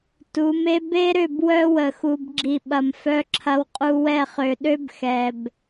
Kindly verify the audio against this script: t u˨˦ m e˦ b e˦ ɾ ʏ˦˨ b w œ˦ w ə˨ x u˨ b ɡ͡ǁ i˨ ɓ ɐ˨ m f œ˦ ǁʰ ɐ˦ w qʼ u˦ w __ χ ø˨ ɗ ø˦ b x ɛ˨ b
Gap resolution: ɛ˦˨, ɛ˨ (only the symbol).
ɛ˦˨